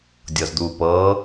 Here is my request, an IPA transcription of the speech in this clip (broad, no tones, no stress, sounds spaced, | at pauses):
dʲ ɤ z d̪ u p ɤ